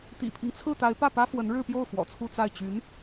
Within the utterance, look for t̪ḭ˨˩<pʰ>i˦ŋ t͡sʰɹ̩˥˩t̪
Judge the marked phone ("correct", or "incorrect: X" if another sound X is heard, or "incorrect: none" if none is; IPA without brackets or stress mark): correct